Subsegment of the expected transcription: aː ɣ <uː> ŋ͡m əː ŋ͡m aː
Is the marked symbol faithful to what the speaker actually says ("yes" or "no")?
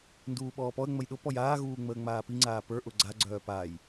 yes